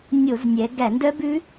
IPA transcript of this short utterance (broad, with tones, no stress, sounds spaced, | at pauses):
nʲ o˧˩˧ z nʲ ɛ˩˧ ɡ æ˧˩˧ n d œ˦˥ b ʉ˦˥